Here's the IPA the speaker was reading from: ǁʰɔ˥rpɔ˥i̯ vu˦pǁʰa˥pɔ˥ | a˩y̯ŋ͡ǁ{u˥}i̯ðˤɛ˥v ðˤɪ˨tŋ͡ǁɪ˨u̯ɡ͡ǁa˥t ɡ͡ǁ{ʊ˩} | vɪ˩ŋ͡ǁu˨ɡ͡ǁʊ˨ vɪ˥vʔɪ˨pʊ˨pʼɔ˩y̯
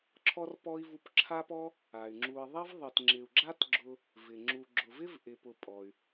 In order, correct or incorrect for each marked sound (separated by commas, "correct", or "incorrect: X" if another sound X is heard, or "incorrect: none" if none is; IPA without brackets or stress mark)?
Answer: incorrect: u˨, incorrect: ʊ˦